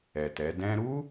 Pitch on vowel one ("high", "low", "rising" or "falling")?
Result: low